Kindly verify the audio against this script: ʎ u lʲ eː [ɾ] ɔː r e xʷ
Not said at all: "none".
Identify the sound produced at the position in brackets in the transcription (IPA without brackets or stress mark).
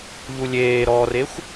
ɾ